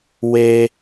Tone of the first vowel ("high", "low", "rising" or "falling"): high